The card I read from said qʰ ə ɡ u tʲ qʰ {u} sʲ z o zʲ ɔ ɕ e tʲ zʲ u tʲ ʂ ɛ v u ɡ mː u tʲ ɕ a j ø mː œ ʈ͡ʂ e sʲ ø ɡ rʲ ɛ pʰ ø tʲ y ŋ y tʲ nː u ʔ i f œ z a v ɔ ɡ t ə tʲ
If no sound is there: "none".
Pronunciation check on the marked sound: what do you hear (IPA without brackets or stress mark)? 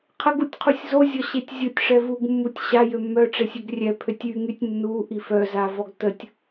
u